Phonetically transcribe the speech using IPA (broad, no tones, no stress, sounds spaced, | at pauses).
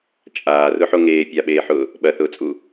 t͡ʃʼ aː r ʊ ħ o ŋ eː pʲ a ɓ eː ħ ʊː | ɓ ɐ θ ʊː t͡sʼ u